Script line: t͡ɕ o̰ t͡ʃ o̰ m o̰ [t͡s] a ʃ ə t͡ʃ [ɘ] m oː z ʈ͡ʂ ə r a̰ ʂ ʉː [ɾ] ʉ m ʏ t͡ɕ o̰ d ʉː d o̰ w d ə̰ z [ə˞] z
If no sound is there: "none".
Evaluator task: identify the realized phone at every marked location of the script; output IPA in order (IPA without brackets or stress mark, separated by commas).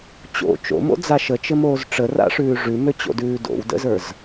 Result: d͡z, ɘ, ʐ, ə˞